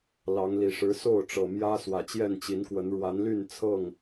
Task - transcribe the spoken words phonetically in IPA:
l ɑ˨˦ ŋ l i˨˩ ʂ ɻ̩˨˦ s o˥˨ ʊ̯ ʈ͡ʂ ɤ˨˩ m j ä˦ s w ä˨˩ t͡ɕ j ɛ˥˨ n t͡ɕ i˨˦ n k w ə˨˦ n ɻ w a˨˦ n l y˥˨ n t͡sʰ ɤ˥˨ ŋ

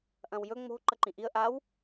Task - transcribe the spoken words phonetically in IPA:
ʔ ɐ̃ w j ɵ ŋ͡m o̤ ǃ ɐ ǃ ĩ ʔ i ə̯ ʔ a w

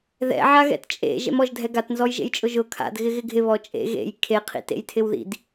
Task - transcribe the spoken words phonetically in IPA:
ð ɛ̰ ʕ a ɣ ɛ̰ t t͡ʃʼ ḛ ʒ ɛ̰ m ɔ ʒ dʱ ɛ ɡ a t n z ɔ j ʒ ḛ j t͡ʃʼ ʊ ʒ ʊ kʰ a̰ d ɣ ɪ ɣ ɪ ɡʱ ɪ β ɔ t͡ʃʼ ḛ ɣ ḛ j kʰ e qʰ ḭ t ḛ j tʰ ɪ w ð ḭ d

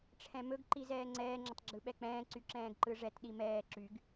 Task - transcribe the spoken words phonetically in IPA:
ʈ͡ʂʰ ɛ̃ m ɵ ɡ ǃ i z ɛː ŋ͡ǀ ɛː ŋ͡ǁ ə tˤ ɡ͡ǁ ɯ ɓ ɛ k͡p ɛ̃ː ǀ y ǁ ɛ̃ː ɡ ǃ ɯ ʐ ɛ t ɗ i m ɛː ǁ y ɡ

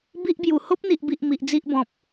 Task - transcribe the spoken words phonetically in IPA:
b i˦ ʔ b j u˨˩ h o˦ p̚ n̪ i˨ ʔ b i˨ ʔ m i˨ ʔ d͡z i˦ ʔ b ɔ̃˨ p̚

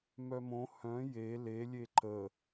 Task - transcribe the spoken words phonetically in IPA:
m œ m õ h œ̃ j e l e lʲ e ǃ ə

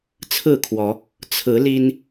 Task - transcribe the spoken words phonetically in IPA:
t͡sʰ ɹ̩˥˨ kʰ w ɔ˨˦ | t͡sʰ ɹ̩˨˦ l i˦ n

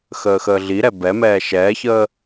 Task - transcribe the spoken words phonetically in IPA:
x əː x əː ɮ i ɾ ɛ b ɛ m ɛː ʃ ɛː ç əː

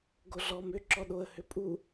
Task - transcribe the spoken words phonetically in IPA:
ɡ o ɮ ɔ m ʏ ǁ ɔ ɗ o ə̯ h ʏ pʼ u

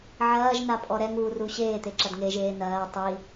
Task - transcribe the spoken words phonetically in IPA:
ʕ ɐː ʒ n a pʼ ɔ ɾ ɛ ŋ β u r u ɕ eː t̪ e ǁ ɐ d ŋ e ʒ eː n ɐː tˤ i

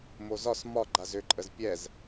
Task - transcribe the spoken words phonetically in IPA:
m o z ɒ s m ɒ ɡ͡ǃ a z ʏ ǃʼ ə z pʲ ɛ z

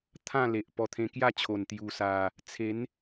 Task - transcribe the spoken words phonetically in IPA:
t̪ʰ ã˥˧ l e˨ ʔ p ɔ˧ t̪ʰ ẽ˧ k j a˥˧ t͡ɕʰ o˨˩ n t̪ j u˨˩ s a˨˩ | t͡sʰ e˨˦ n

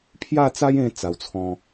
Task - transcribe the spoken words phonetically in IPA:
pʰ j a˥˧ t͡s a˦ j ẽ˧ t͡s a˧ w t͡sʰ ɔ̃˦

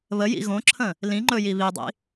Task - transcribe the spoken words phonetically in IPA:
β ə j ḭ ɣ õ ǁʰ ə̃ | l ĩ ŋ͡ǃ ɵ j i β i dˤ ḭ

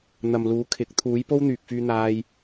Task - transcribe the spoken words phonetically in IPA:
n̪ ɐ˨ m l uː˨˥ kʰ ɪ˨˥ k̚ t̪ʰ uː˨˥ j p o˥ w n̪ yː˨ k̚ f yː˧ n̪ aː˥ j

